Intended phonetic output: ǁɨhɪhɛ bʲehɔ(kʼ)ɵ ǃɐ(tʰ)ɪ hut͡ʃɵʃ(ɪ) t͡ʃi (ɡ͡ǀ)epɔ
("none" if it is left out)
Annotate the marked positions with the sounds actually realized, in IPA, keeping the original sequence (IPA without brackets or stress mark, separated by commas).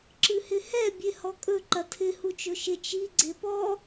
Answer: kʼ, tʰ, ɪ, ɡ͡ǀ